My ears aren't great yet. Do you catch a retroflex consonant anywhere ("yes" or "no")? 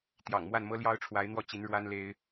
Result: yes